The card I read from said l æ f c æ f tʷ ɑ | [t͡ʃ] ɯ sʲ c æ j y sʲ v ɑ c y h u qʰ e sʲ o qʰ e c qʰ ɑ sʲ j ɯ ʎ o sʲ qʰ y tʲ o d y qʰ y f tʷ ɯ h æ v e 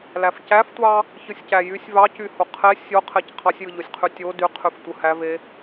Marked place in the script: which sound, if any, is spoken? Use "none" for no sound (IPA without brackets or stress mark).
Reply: ç